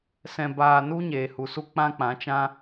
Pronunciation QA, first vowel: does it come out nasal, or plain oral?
nasal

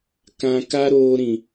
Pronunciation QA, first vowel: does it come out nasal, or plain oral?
nasal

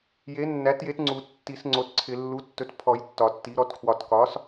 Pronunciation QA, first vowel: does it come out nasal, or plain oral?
oral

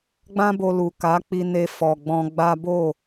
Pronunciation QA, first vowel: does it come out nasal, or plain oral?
nasal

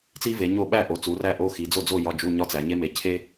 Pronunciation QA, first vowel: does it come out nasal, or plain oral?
oral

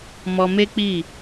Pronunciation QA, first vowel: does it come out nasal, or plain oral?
oral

